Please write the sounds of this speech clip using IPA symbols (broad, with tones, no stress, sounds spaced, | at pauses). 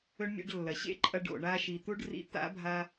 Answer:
ɵ˥ ɳ mʲ ḛ˥ ɖ lː ɐ˩ ɕ ḛ˥ ǃʼ ɐ˧ ɖ o̰˩ ɳ a˧ ʃ i˩ t̪ u˥ ɖ r ḭ˧ t̪ a̰˥ bʱ a˧